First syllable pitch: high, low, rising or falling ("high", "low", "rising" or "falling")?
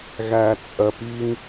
low